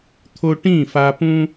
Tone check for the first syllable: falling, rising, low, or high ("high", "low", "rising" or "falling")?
high